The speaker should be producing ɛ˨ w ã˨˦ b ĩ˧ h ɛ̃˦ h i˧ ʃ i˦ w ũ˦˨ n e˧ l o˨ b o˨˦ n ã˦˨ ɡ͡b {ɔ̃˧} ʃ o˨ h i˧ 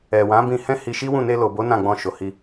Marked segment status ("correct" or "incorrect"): correct